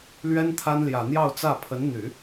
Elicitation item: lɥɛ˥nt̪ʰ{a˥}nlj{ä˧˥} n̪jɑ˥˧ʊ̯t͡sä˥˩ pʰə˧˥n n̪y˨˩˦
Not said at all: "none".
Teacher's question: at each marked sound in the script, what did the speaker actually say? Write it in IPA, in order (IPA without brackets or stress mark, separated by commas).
a˥, ä˨˩